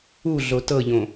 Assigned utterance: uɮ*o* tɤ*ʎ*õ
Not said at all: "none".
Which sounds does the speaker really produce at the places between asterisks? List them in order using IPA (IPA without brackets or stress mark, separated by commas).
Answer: o, ʎ